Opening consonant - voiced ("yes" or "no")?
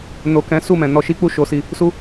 yes